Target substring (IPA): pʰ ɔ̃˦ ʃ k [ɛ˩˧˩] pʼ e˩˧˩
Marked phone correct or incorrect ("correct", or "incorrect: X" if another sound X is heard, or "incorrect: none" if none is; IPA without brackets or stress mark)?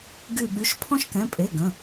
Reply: incorrect: ɛ̃˩˧˩